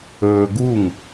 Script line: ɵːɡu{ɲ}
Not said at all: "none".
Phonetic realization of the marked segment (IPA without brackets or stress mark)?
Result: ŋ